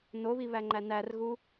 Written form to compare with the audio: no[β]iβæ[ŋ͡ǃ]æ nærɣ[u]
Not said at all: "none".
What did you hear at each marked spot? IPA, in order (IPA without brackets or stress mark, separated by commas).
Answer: β, ŋ͡ǃ, u